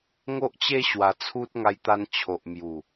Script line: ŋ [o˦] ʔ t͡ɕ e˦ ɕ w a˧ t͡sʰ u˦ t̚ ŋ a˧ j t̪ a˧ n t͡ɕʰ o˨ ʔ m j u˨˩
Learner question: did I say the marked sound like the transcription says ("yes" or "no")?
yes